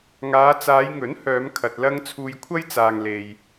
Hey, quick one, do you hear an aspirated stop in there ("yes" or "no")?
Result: yes